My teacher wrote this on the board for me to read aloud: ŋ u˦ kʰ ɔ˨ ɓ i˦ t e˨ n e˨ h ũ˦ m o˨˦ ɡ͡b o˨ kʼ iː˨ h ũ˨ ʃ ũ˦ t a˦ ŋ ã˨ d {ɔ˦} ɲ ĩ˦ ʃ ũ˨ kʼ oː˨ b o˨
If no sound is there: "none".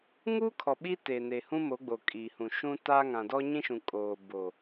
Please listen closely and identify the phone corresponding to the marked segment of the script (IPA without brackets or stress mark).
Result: ɔ˦